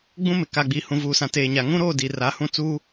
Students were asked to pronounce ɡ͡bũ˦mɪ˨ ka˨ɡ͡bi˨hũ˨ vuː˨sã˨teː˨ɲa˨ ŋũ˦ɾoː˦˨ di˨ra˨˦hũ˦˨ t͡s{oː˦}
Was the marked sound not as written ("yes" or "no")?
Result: yes